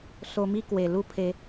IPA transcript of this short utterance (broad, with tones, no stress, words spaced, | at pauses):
so˧mi˥˧ kwe˨˩ lu˥˧pʰe˧